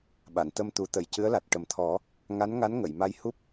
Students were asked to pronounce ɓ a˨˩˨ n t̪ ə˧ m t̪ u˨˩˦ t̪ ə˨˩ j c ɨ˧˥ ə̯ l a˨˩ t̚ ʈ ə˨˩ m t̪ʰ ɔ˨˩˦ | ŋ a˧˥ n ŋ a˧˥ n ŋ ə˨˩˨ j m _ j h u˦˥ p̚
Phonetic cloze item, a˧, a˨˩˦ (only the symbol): a˧